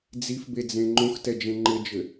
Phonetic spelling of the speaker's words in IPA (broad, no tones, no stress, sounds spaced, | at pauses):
d͡z i f b e d͡z ẽ ŋ͡ǃ õ x t ɛ d͡ʒ ẽ ŋ͡ǃ ɘ d͡ʒ ɘ